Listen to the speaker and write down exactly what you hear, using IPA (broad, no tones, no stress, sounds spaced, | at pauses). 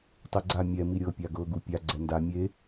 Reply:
tˤ i ɡ͡ǀ a mʲ ɛ m i ɾʲ ɤ pʲ a ɡ ɤ ɡ u pʲ a ɡ͡ǀ ɛ n d a mʲ e